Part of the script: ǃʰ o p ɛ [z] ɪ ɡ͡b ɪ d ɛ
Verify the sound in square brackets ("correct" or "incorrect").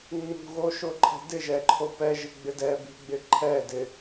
incorrect